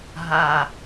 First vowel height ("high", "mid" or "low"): low